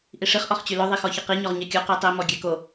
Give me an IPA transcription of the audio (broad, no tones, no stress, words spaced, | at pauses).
ʔiʂiχ ʔɔχt͡ɕylœ ðˤixɔçʌqi ɲɔʁɲɛkʲo qitˤi mɔɡʲɛko